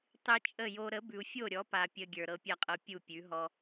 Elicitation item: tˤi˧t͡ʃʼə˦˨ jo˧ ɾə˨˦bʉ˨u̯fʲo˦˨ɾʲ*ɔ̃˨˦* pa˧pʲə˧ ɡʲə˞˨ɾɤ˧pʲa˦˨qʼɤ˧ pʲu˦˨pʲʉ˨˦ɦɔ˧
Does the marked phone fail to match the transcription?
yes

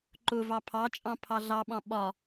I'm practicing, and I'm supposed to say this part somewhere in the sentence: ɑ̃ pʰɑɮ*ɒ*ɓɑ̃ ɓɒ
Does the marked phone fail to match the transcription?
yes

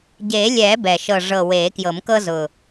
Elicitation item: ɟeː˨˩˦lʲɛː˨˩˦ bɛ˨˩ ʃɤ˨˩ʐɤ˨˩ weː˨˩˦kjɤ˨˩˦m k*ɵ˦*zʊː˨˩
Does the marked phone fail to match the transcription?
yes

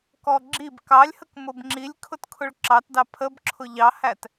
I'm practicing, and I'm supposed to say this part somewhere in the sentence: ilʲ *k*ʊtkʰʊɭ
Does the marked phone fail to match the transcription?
yes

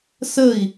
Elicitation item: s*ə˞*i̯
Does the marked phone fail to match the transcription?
yes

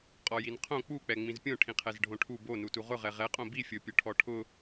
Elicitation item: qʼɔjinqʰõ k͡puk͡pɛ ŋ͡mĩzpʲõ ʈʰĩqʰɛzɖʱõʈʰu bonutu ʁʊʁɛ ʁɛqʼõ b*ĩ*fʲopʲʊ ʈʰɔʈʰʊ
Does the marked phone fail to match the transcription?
yes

